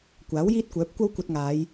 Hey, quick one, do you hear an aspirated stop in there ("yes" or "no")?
no